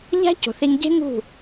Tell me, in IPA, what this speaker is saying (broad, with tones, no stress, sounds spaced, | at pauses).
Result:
ʎ æ̤˦ c o̤˨ θ i˧ ŋ ɟ e̤˦ ŋ ṳ˦˨